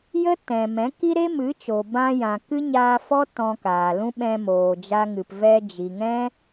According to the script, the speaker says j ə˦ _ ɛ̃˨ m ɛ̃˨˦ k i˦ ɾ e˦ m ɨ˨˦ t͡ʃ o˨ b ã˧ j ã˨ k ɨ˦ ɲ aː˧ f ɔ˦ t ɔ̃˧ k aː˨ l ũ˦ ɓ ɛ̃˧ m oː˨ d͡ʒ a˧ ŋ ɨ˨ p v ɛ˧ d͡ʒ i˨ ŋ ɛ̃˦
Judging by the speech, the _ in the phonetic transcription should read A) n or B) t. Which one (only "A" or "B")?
B